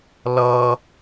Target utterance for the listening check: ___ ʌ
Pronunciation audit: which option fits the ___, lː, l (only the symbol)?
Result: l